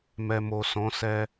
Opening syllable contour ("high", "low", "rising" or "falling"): low